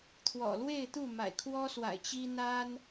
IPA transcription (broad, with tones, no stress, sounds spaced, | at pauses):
t̪ʰ w ɔ̰˨˩ l w e˥˨ ɪ̯ t̪ u˥˨ m a̰˨˩ ɪ̯ kʰ w ɔ˦ s w a̰˨˩ ɪ̯ t͡ɕ i˦ n̪ a˦ n